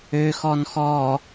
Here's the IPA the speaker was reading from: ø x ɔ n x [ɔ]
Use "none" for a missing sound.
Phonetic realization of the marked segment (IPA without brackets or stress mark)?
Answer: ɔ